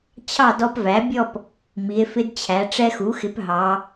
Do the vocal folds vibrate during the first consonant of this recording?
no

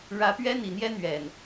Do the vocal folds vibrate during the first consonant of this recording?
yes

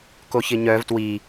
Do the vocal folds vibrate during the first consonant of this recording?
no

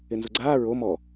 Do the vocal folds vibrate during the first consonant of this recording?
yes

